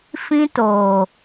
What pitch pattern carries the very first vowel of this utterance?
high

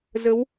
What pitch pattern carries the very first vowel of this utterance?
rising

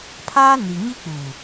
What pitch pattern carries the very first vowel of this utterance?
high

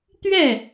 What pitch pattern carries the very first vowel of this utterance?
falling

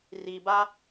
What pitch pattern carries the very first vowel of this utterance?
low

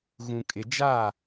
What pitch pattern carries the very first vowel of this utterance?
low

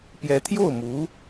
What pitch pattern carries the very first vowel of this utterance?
rising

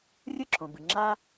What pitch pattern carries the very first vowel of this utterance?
high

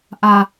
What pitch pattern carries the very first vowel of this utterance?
low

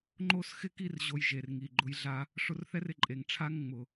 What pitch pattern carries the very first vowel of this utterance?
high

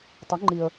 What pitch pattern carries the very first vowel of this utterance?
rising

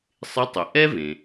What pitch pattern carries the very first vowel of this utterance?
rising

